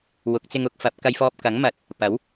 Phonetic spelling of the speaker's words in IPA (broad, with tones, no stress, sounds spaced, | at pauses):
w ʊ˨˥ k̚ t͡s ɪ˧ ŋ ʊ˨˥ k̚ f ɐ˨˥ p̚ k ɐ˧ j f ɔː˧ p̚ k ɐ˨˥ ŋ m ɐ˨˥ t̚ | p ɐ˨˥ w